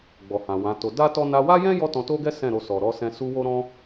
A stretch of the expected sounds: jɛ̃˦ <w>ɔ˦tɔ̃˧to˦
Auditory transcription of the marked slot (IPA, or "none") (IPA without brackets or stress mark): j